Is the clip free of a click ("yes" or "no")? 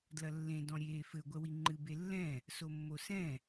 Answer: no